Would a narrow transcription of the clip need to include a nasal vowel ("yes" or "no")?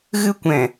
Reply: yes